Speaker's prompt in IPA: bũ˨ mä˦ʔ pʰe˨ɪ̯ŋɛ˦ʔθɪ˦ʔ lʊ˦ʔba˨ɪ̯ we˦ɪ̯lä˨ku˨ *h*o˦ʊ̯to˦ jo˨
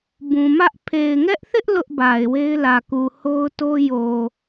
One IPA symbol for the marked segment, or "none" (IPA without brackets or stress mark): h